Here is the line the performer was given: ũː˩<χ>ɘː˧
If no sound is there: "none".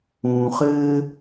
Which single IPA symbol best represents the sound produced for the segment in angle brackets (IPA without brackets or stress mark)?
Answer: χ